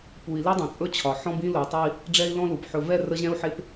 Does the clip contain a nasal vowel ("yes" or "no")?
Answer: yes